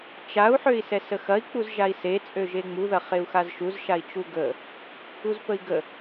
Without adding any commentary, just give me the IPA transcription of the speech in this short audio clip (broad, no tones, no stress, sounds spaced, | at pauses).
t͡ʃ a u̯ ħ ø i̯ s ɛ s ə x ɐ i̯ k͡p u z ʒ a i̯ s e t͡sʼ ø ʒ e ŋ͡m u ð ɐ χ e u̯ x a z ʃ u z ʃ a i̯ t͡ʃ u ɡ ə | u z p ə i̯ ɡ ə